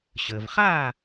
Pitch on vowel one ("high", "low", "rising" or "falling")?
low